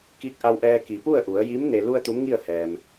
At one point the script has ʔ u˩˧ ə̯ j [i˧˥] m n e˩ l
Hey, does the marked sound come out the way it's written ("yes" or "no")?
yes